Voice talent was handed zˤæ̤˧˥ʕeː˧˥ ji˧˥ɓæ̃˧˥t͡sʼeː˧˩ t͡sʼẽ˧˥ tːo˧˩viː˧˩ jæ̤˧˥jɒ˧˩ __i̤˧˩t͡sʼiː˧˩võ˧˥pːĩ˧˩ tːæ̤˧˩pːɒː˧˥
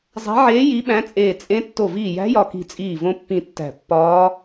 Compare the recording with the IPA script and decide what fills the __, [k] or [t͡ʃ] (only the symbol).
k